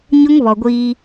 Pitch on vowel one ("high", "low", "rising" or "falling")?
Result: high